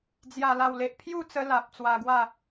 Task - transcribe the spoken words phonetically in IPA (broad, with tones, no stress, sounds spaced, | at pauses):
d͡z j a˨˩ l a˨˩ w l e˨ ʔ pʰ j u˥˧ t͡s ə˧ l a˨ p̚ t͡s w a˧ ɡ w a˥˧